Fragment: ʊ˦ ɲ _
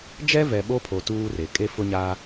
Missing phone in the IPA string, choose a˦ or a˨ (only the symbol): a˦